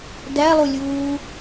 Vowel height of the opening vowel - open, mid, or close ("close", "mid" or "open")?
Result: open